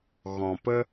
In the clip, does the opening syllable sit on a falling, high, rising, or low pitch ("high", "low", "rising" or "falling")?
low